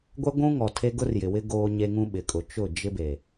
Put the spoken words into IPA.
ɡʷ ɛ˦ ɡʷ ũ˦ ŋ ɔ˨ tʰ e˦ ɡ ʊ˦ r j ɪ˨ w ɪ˦ ɡ oː˦ ɲ e˦ ŋ ũ˦ ɓ ɪ˨ kʼ ʊ˨ t͡ʃ ʊ˦˨ d͡ʒ ɪ˦ b e˨

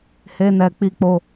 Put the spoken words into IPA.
h e˦ n ɛ˧ k͡p i˦ k͡p o˦

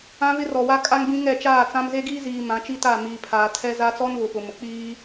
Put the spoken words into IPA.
ã˦ β ɪ˦ r ɔ˨ w a˦ kʼ a˦ ŋ b ĩ˦ ŋ ɛ˦˨ t͡ʃ aː˦˨ t͡s ã˦ m z e˦ ɡ iː˦ z iː˨ m ã˨˦ t͡ʃ i˦ t a˦˨ m iː˨ pʰ aː˨ tʰ ɛ˦ z a˦ t͡s ɔ˦ n β ʊ˨ p ʊ˨ m ʊ˨ k͡p iː˦

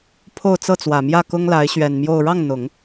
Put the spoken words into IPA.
pʰ o˥˧ ʊ̯ t͡s ɤ˥˩ t͡s w ä˨˩ m j ä˥˩ k ʊ˥ ŋ l a˧˥ ɪ̯ ɕ ɥ ɛ˨˩ n m j o˥˧ ʊ̯ ɻ ɑ˥˩ ŋ n̪ ʊ˨˩˦ ŋ

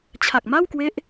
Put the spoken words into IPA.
t͡ɕʰ a˨˩ k̚ m a˥˩ w k w e˦˥ ʔ

